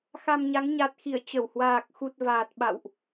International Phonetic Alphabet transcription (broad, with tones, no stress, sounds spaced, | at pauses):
x a˧ m ɲ a˨˦ ŋ ɲ a˨˩ t̚ x i˧˩ ə̯ t͡ɕ ə˧˩ w h w aː˨˩ k̚ x u˨˩ t̚ v aː˨˩ t̚ ɓ a̰˧˨ w ʔ